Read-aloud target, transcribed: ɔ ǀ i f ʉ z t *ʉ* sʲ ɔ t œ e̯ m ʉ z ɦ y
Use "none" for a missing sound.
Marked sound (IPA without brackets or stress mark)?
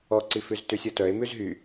ʉ